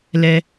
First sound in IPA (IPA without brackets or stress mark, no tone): l